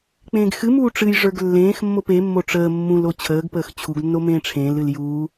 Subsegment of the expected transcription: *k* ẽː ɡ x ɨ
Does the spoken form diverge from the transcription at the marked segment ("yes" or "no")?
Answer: yes